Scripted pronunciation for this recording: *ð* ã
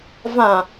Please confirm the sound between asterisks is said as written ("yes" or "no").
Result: no